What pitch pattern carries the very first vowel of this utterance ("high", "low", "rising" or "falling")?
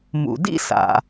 low